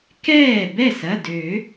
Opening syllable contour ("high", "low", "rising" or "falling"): falling